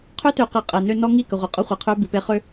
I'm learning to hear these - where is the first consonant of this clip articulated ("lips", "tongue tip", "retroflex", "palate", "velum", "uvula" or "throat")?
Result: uvula